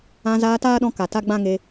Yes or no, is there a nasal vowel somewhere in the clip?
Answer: yes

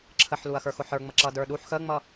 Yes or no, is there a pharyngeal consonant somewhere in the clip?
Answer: yes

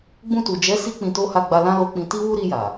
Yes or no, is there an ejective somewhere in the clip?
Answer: no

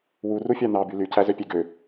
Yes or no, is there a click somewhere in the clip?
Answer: no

